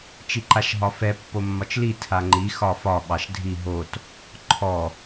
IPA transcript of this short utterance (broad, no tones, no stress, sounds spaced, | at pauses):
t͡ʃ i ǃ a ʃ ɦ ɒ f ɛ pː o mː ɒ t͡ʃ l i tʰ a ŋ͡ǃ i x ɒ f ɒ ɓ ɑ ʃ dʱ i ɦ o t | ǃʰ ɔ